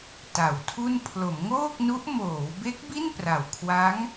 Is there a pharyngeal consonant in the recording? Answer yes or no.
no